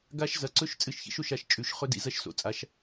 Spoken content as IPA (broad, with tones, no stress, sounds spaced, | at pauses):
ɡ a˦˥ ʃ z ɐ˨˦ ǀ ɵ˦˥ ʃ t͡sʼ ɨ˦˥ ʃ ç ḭ˦˥ ʃ o˨˦ ʃ a˨˦ ʃ t͡ʃʼ ʉ˨˦ ʃ χ ɵ˦˥ d ḭ˨˦ z ɐ˦˥ ʃ s o̰˨˦ t͡sʼ a˨˦ ʃ